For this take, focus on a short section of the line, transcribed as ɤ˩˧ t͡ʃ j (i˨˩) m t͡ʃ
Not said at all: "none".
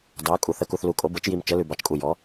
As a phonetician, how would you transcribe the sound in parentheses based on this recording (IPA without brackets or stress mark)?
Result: i˨˩